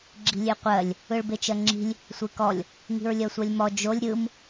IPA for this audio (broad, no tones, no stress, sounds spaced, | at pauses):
ɡ͡ǁ i̤ lʲ e qʷ ɜ lʲ | ɯ ɭ b e t͡ʃ ɜ ŋ͡ǁ i̤ lʲ | sʷ e k ɔ lʲ | ŋ i̤ ɹ lʲ ɜ sʷ ɜ lʲ m ɔ d͡ʒ o lʲ ɾʲ ɯ m